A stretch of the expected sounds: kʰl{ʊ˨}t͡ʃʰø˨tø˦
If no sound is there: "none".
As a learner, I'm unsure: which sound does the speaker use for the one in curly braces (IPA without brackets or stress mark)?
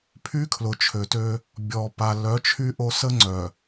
ʊ˨